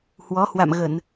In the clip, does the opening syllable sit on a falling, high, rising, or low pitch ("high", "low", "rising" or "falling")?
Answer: rising